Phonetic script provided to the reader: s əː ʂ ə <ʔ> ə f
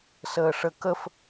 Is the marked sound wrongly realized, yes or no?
yes